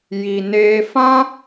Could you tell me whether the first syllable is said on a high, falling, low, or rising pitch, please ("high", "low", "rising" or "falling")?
low